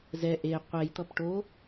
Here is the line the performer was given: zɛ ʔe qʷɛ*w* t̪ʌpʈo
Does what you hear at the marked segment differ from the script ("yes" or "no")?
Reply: yes